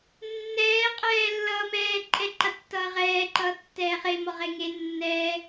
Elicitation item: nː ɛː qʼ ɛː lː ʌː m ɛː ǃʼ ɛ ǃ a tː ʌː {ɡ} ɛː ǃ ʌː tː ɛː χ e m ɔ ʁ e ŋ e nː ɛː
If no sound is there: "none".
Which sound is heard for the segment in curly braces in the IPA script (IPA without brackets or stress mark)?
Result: ʁ